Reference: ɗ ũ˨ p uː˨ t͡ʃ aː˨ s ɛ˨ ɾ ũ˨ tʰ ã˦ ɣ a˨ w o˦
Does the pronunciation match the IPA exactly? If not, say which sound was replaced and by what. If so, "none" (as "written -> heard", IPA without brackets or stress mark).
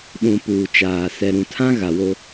none